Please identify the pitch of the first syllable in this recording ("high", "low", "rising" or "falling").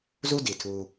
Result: high